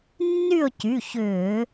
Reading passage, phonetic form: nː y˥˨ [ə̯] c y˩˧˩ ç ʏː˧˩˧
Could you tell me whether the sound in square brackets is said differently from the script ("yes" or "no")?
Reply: yes